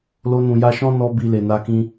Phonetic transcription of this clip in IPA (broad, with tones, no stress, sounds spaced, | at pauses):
l o˧ n ũ˨ j a˧ ʃ ɔ̃˦ n ɔ˧ b i˨ l e˨ n a˧ k ĩ˧